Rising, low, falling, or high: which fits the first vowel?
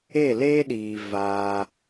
falling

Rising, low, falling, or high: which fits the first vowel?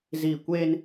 falling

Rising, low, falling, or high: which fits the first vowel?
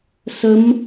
rising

